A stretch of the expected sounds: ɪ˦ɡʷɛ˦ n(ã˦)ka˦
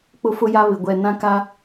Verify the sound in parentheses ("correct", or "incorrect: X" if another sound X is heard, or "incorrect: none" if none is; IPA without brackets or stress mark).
correct